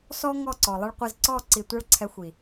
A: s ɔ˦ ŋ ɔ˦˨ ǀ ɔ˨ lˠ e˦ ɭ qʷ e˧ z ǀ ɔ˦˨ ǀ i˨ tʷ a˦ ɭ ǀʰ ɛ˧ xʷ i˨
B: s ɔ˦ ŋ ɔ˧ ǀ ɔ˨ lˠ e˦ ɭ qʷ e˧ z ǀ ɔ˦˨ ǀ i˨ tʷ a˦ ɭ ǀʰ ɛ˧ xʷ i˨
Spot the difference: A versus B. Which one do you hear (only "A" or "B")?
A